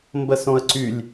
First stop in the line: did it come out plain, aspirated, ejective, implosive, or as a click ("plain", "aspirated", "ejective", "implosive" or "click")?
plain